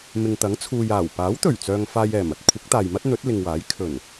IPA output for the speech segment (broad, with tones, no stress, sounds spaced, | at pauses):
m ɪ˨ ŋ t̪ ɐ˨˥ ŋ t͡sʰ uː˨ j aː˨˩ w p aː˨˥ w t̪ ɵ˨˩ ɥ t͡s œː˨ ŋ f aː˨ j ɛː˨˩ m ɐ˥ t̚ kʷʰ ɪ˨˥ k̚ t̪ aː˨ j m ɐ˥ t̚ n̪ ɵ˨˥ t̚ l ɪ˨ ŋ w aː˨˥ j kʰ ɵ˨˩ n